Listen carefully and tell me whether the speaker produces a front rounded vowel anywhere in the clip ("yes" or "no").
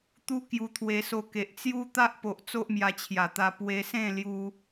no